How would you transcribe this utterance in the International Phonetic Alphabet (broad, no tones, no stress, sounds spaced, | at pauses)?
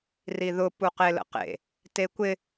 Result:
r i ð ʊ p u q e l ə̰ q ḛ | t e kʷ ɪ